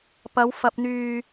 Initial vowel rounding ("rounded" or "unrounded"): unrounded